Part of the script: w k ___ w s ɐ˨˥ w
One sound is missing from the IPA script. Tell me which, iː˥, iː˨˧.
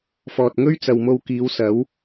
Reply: iː˨˧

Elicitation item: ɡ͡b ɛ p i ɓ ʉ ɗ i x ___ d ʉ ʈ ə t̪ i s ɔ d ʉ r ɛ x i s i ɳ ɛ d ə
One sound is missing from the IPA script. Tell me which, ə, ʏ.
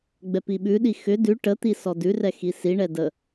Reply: ʏ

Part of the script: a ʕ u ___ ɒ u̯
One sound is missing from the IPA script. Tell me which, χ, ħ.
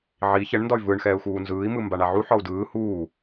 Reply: ħ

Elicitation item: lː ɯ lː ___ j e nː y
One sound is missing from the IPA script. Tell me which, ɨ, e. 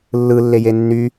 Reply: e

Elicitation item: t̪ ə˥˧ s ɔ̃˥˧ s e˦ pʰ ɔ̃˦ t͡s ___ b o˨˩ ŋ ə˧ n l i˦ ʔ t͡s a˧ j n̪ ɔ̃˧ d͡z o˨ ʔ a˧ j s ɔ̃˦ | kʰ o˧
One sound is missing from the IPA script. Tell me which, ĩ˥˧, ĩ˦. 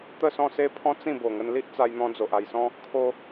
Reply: ĩ˥˧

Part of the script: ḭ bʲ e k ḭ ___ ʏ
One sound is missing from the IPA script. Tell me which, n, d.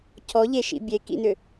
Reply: n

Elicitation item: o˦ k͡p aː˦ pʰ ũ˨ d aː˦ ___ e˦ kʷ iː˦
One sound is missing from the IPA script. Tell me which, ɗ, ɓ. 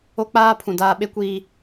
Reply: ɓ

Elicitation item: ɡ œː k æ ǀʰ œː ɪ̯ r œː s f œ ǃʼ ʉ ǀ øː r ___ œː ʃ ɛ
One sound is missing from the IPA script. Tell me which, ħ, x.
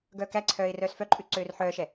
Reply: ħ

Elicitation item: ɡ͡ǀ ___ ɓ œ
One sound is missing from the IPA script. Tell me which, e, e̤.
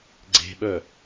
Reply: e̤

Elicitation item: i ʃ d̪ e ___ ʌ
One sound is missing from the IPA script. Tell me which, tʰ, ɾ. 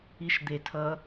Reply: tʰ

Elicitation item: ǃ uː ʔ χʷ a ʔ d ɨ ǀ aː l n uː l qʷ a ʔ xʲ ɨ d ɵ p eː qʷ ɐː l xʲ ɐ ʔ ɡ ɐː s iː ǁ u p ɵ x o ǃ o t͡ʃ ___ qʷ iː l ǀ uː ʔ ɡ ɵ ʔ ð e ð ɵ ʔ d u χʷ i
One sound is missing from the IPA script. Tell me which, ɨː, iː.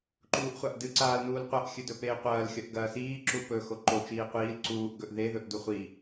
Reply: iː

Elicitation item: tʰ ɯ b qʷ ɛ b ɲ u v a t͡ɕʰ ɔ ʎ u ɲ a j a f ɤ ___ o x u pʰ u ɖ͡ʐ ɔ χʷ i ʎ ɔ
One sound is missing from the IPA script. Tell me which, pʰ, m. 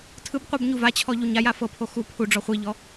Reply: pʰ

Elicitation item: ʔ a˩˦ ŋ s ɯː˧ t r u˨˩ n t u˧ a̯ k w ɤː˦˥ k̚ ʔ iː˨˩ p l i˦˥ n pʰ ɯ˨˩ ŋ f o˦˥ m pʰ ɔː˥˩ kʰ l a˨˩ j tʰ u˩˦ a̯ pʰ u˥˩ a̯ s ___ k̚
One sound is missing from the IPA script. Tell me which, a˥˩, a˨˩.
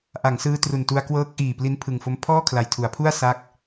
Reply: a˥˩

